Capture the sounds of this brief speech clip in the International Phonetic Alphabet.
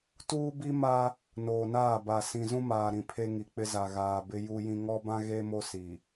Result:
t uː˦ b i˦ m a˦ | n oː˨ n aː˦˨ b a˨ s ĩ˨ z ũ˦ m aː˨ ɾ ĩ˨ pʰ e˦ ŋ i˨ k͡p ɪ˦ z a˨ ɣ aː˨ b ɪ˦ j u˦ j ĩ˦ ŋ ɔ˦ b ã˦ ɣ e˦ m o˦ s i˨

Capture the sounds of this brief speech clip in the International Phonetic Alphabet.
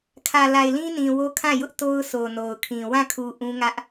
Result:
kʰ ä˨ l a˨ ɪ̯ l ĩ˦ n ĩ˨ w o˦ kʰ ã˦˨ j ʊ˦ ʔ t o˦ ʊ̯ sʰ o˨ n o˨ ʊ̯ kʰ ĩ˨ w ã˦˨ kʰ u˨ ʔ ũ˦ ŋ ä˦ ʔ

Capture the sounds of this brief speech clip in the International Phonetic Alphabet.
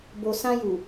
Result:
b o˨ s ã˧ j u˨

